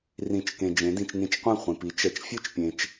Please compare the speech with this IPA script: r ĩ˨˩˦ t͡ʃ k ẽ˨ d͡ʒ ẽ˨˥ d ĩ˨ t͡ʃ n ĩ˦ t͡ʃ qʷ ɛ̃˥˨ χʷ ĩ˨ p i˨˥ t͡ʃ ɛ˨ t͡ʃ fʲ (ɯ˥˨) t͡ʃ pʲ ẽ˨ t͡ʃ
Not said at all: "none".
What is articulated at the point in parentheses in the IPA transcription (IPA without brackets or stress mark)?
ɯ˥˨